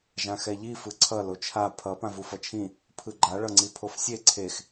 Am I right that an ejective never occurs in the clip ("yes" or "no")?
yes